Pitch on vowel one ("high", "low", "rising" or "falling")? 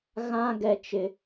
high